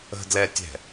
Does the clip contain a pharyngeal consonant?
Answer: no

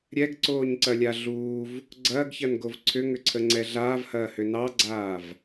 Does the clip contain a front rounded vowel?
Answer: yes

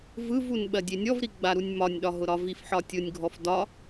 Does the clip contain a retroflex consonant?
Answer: no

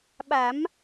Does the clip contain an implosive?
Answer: yes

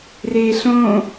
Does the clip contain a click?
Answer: no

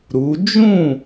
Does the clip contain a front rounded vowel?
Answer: no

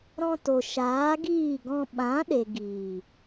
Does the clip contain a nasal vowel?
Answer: yes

